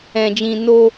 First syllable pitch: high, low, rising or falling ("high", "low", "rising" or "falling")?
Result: low